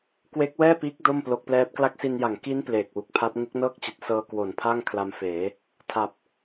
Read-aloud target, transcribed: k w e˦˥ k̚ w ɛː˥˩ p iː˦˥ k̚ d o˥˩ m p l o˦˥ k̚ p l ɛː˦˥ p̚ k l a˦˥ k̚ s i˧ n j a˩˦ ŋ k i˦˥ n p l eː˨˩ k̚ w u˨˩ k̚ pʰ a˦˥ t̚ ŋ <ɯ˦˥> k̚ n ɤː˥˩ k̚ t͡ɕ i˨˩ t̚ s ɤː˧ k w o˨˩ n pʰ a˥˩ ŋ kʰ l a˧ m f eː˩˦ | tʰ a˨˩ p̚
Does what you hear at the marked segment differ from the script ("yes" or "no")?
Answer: yes